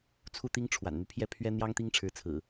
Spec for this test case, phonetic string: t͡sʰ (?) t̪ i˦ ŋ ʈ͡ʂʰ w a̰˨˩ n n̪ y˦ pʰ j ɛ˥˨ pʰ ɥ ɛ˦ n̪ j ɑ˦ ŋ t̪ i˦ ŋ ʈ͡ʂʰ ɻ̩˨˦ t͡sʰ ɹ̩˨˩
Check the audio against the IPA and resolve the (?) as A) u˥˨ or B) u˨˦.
A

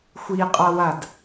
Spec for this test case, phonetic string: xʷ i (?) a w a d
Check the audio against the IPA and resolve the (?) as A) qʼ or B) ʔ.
A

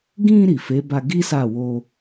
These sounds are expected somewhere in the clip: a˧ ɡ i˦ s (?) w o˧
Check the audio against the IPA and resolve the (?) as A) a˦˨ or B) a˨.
A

